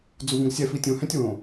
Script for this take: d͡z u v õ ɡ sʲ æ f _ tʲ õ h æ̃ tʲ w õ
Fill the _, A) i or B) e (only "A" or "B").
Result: A